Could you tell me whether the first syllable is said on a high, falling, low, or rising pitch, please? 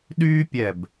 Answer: high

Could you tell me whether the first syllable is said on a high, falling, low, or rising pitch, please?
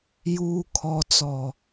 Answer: low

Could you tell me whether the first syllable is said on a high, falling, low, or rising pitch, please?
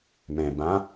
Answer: low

